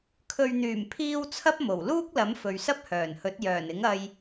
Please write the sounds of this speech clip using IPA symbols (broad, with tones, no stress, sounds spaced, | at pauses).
kʰ ɵ˨ ɥ n̪ yː˨˩ m pʰ iː˧ w t͡sʰ ɐ˥ p̚ m o˨˩ w l uː˥ k̚ l ɐ˨˥ m f ɵ˨ ɥ s ɐ˥ p̚ h œː˨˩ n h ɵ˨˥ t̚ j œː˨˩ n ɪ˨˥ ŋ ɐ˧ j